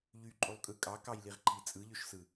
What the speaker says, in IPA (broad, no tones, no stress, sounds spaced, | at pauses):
ʎ y ǃʼ u lˠ kʼ ɯ kʼ ɑ k ɑ j l i ʁ ǃʰ i t͡sʼ ɯ ʎ ø ʃ s ɯ